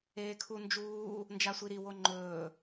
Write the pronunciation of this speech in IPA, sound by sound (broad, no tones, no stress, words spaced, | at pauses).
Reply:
eːkʰund͡ʒuː | nd͡ʒasʷiɾi woŋ͡ǃɵː